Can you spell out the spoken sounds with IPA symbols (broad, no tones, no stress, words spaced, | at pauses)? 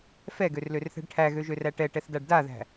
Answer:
fɛɡørlørθɛ̤ɖ ʈʰæɣøʒøræ ʈɛʈɛθdaɖ daðæ̤